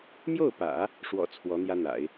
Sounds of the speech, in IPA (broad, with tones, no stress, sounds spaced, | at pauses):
m j o˥˩ ʊ̯ p ä̰˨˩˦ | ʂ w ɔ̰˨˩ t͡sʰ w ɔ˧˥ n̪ j ä˥ n̪ a̰˨˩˦ ɪ̯